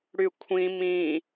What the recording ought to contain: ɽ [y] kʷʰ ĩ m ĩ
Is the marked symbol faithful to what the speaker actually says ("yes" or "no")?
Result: yes